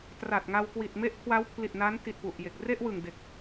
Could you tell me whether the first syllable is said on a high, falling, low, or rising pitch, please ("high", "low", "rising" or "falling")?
low